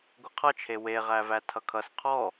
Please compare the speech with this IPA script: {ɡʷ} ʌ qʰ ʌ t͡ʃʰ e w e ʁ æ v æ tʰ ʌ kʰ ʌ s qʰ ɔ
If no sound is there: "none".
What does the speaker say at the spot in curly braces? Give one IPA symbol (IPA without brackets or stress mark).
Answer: ɡʷ